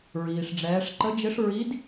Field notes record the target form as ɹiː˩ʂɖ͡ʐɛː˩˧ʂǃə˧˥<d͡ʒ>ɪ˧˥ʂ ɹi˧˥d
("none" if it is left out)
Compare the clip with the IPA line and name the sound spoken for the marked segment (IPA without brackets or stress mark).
d͡ʒ